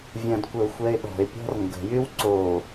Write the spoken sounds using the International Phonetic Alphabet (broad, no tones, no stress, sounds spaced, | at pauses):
vʲ ɐ̃ d kʷ ə ʊ̯ xʷ ɛ ɪ̯ ɗ ɔ̤ ɪ̯ pʲ ɔ̤ r ŋ ɡ ə̤ j y w ǀ o